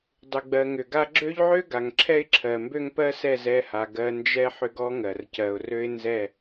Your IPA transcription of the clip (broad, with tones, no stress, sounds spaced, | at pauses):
dˤ ʏ˨ ɡ͡b ɜ˨ ŋ ʏ˨ ɡ a˦ ɡ͡ǁ ø˦ ʎ ʕ ø˦ ɡ a˨ ŋ ǁʰ ɛ˦ ɪ̯ ǁʰ ɜ˨ m b ø˦ ŋ p ɜ˦ s ɛ˦˨ z ɛ˦˨ h a˨ ɡ ɜ˨ n d͡ʒ ɛ˦ ħ ʏ˦ ɡ ɔ˦ ŋ ɜ˨ r c ɜ˨ ʊ̯ r ø˦ ɪ̯ n z ɛ˦˨